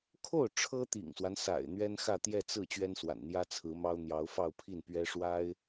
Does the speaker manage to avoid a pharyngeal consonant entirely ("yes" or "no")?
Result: yes